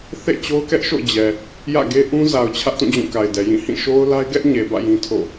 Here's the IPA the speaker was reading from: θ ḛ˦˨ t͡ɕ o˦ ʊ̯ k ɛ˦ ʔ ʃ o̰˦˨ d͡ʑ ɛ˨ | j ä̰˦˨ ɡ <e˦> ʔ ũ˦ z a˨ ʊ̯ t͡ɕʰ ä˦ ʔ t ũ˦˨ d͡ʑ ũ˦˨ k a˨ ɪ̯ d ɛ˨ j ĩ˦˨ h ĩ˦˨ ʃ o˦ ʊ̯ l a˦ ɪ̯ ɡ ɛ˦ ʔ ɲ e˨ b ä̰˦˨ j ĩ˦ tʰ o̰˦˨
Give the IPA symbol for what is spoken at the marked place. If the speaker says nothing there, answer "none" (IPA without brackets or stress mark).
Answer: e˦